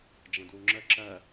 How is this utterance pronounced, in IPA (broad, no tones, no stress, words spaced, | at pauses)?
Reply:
d͡ʒə̃dwuŋ͡ǁə ǁɜ